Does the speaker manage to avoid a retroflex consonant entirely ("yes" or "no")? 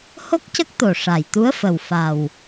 no